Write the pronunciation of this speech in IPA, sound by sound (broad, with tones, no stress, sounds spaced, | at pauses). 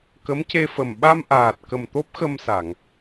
k ə˧˥ m c e˧ f ə˨˩ m ɓ a˧ m ʔ aː˨˩ t̚ k ə˨˩ m t̪ o˦˥ p̚ x ə˧ m s a˨˩˨ ŋ